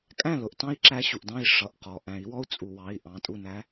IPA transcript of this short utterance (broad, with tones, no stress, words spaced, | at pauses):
kʼæ̃˥˩lʊ˩˧˩ʔtɑ̃˦˥i̯ǁæ˨˦ ɕu˩ʔdɑ̃˥˩i̯ʂʌ˩˧˩ʔ qɔ˩ ʔæ̃˨˩˦i̯wɔ˦˥u̯ t͡sʼu˩wɑ˩˧˩i̯ ʔɑ̃˩˧˩tʼu˥˩næ˦˥